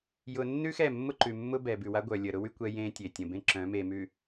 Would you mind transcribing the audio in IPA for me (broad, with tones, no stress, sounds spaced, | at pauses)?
j ʊ˨ nː ʉ˦ x ɛ˦˨ mː ʊ˦ ǃ ʉ˨ mː ʊ˦ b ɛ˨ b ʉ˨ w a˦ ɡʷ œ˨ lʲ ə˨ ɾ ʊ˦ w y˦ kʷ ɛ˦ j ẽː˦ tʲ e˨ tʲ ə̃˨ b ẽ˦ ǁ œ̃˨˦ m e˨ m ʉ˨